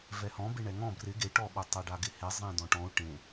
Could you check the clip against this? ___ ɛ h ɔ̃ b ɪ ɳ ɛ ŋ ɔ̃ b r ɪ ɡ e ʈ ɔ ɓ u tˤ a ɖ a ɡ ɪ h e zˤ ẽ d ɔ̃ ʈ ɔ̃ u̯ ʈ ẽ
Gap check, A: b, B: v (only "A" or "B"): B